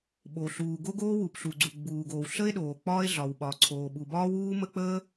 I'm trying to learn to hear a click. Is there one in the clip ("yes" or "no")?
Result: yes